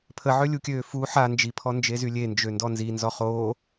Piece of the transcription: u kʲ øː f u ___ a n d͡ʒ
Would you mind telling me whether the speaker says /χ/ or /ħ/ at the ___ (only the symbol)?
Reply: ħ